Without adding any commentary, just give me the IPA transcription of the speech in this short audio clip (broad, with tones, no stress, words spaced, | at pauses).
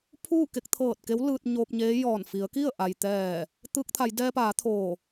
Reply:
pʰuː˥˨ke˧k̚t̪ʰɤː˧˩t̚ke˧˥w lɯː˧t̚ɲoː˧p̚ɲeː˧˥jɔː˧˩n fi˩˧ə̯ki˥˨ə̯ ʔa˩jt̪ɛː˧˩ | t̪ɯː˧k̚t̪ʰa˩˧j dɛː˧paː˩˧ t̪ʰoː˧˩